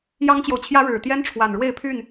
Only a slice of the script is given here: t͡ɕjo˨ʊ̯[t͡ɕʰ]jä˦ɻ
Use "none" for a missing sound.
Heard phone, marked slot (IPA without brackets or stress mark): t͡ɕʰ